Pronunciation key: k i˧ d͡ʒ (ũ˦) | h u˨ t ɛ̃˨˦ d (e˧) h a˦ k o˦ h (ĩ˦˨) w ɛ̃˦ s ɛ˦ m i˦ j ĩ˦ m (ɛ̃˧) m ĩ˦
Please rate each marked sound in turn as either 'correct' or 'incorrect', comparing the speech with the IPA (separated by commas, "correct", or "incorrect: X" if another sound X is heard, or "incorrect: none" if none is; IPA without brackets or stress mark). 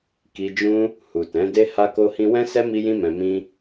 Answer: correct, incorrect: e˦, incorrect: ĩ˦, correct